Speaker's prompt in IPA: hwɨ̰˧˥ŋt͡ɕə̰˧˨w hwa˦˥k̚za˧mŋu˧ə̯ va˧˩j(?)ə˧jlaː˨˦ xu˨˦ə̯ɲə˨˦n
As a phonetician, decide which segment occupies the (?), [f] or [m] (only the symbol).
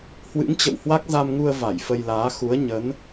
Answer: f